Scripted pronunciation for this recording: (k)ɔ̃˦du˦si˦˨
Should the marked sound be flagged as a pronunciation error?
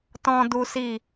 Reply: yes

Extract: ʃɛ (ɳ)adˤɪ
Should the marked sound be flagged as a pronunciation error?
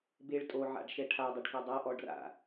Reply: yes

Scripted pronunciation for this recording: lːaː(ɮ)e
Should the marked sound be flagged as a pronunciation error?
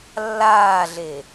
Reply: no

